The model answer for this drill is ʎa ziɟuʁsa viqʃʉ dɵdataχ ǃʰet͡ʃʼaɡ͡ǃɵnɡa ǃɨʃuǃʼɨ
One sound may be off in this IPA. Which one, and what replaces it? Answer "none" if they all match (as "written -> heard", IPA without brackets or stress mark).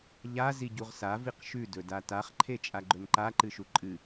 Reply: ɡ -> ǃ